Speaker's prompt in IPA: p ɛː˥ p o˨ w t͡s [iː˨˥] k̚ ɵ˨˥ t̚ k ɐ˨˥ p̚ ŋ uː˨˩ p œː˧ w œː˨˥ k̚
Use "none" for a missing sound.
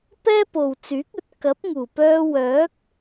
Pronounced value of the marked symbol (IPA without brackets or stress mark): yː˨˥